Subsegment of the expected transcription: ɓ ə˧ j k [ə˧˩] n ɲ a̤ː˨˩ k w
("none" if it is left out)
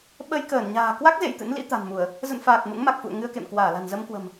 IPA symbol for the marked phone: əː˧˩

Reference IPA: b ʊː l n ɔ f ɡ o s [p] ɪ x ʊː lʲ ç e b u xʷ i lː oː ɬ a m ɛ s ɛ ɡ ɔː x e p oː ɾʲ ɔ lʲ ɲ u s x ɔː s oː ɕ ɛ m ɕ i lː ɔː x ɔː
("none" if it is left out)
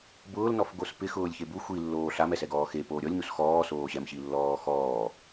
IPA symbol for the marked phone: p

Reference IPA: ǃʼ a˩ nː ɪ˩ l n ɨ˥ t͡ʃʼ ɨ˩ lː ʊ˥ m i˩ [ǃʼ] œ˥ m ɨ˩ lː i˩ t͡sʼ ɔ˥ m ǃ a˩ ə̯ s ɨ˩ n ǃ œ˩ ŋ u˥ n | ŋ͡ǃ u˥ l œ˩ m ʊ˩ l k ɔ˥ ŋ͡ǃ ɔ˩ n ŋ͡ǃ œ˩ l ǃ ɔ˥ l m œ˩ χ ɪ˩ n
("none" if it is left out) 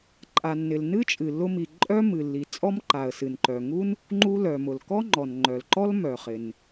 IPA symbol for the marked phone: ǃʼ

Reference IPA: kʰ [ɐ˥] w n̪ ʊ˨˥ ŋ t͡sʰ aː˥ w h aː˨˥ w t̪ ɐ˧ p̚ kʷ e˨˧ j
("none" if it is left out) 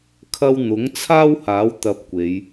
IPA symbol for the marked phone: ɐ˥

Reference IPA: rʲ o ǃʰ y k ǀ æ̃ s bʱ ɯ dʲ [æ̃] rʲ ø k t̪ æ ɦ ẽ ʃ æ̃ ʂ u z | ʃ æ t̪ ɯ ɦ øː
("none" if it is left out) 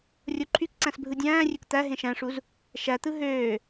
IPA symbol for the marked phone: æ̃ː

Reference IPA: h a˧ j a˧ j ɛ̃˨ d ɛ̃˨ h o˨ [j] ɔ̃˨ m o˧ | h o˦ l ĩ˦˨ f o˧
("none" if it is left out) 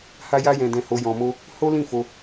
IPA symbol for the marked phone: j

